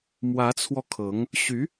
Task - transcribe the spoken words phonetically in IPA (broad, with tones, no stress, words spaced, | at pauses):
mwä˧˥t͡sʰwɔ˧ kʰɤ˧˥ŋ | ɕy˧˥